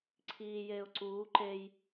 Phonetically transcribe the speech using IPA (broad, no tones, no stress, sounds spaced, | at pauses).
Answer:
ǀʰ iː j eː ʊ̯ ǀ uː ǃ e j